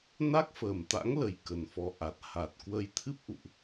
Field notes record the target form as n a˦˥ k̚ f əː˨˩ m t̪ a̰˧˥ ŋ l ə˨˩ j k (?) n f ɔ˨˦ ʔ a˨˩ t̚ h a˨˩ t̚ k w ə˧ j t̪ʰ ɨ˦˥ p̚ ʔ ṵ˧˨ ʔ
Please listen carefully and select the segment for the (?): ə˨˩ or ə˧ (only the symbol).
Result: ə˨˩